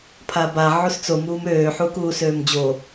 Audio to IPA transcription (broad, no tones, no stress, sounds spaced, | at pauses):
pʰ a b a ʕ u s t͡s o m uː m øː ħ u k uː s øː m d͡ʑ o